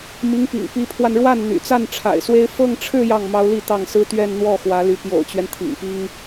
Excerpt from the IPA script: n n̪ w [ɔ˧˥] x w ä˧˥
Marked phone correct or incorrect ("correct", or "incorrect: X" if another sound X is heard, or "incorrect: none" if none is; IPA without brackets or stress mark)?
incorrect: ɔ˥˩